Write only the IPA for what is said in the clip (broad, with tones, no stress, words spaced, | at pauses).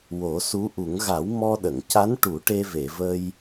wo˨˩˦su˧˥ʔu˨˩˦ŋ ɣa˨˩˦w mɔ˧ɗə˨˩˨ŋca˧˥nʈu˨˩˦ ʈe˧ve˨˩˨və˧j